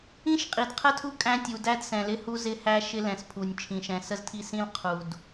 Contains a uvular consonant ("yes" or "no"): yes